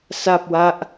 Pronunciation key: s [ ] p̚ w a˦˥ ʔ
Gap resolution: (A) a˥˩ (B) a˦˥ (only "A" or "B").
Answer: A